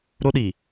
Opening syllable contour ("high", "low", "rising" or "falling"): high